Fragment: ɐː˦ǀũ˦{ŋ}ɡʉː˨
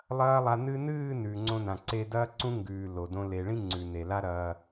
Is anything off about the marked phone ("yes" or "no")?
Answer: no